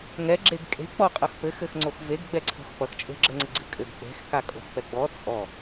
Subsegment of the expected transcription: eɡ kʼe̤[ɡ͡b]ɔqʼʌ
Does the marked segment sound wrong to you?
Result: yes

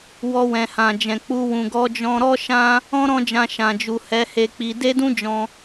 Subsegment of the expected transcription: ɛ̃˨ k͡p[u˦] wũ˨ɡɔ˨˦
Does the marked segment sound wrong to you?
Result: yes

